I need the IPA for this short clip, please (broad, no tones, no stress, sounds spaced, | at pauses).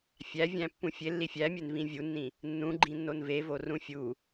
fʲ æ vʲ æ̃ pː ũ fʲ e lː i fʲ æ mʲ e n v ĩ vʲ u nː ĩ | nː ũ ɡ͡ǃ ĩ nː o n v e v o r ũ fʲ u